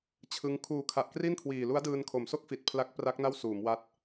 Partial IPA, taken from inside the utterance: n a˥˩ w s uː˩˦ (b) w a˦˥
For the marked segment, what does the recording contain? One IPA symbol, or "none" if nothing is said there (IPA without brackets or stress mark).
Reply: m